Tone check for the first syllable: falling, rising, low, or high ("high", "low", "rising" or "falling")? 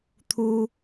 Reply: high